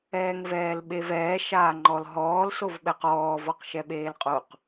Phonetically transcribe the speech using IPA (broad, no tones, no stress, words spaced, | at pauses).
ɛːŋvɛːlɓevɛː ʃaːŋ͡ǃɔlɦɔːl sovɓɛqɔː vɔqʃɛɓeːlqʼoq